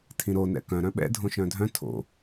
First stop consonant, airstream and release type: aspirated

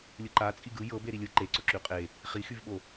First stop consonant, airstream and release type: click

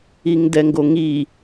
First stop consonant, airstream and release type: plain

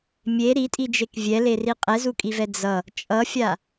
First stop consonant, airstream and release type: ejective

